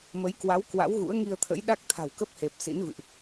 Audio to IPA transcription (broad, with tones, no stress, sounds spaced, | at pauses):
m ə˨˦ j k w a˨˦ w k w a̰˧˥ w ɣ ṵ˧˥ ə̯ ŋ i˧ ə̯ t̪ʰ ə̰˧˥ j ɗ a˦˥ k̚ t̪ʰ a̤˨˩ w k ə˦˥ p̚ h e˨˩ p̚ s ḭ˧˥ n v ɨ̰˧˨ ʔ